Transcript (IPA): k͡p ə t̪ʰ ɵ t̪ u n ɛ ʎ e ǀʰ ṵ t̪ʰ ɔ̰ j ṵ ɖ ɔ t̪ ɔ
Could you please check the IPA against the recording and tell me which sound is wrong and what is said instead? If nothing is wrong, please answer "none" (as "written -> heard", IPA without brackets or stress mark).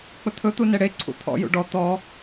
ʎ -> ɽ